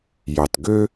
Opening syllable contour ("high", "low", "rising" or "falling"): low